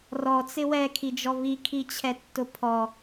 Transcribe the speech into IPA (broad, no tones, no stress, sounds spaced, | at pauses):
r ɔ t͡s ɪ w ɛ kʰ i d͡ʒ ɔ β i kʰ i t͡ɕʰ ɛ tː ʊ pʰ ɔ